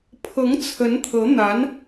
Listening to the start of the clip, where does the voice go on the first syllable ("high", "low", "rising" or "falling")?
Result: rising